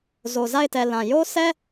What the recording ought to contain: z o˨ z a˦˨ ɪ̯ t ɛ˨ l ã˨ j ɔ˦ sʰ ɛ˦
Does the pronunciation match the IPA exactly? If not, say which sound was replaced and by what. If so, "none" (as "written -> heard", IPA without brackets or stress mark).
ɔ˦ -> o˦